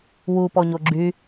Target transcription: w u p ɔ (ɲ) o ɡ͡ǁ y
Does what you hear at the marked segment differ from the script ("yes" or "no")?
no